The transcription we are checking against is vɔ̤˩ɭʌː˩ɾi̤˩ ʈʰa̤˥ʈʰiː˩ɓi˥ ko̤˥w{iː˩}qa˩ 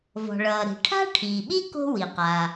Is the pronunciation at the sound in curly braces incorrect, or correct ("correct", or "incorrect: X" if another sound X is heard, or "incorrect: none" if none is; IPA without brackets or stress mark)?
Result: incorrect: i˩